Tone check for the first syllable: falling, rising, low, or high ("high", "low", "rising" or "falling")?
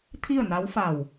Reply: falling